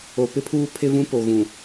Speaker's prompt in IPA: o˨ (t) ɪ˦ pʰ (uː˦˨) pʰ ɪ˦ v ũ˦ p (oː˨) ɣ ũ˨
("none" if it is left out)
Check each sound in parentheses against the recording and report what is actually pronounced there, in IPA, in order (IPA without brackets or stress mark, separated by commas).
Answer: p, uː˦, o˨